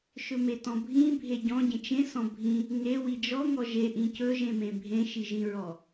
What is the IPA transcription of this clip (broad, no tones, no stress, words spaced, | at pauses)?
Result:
ʃɵmetɔ̃bʱĩ bʱeɟɔ̃ ɟẽt͡ʃẽ sɔ̃bʱĩ | ŋe wid͡ʒɔ ŋɔʒe ʔĩcɵ ʒẽmẽbʱẽ ʃiʒĩɹɔ